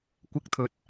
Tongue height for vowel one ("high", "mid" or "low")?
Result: high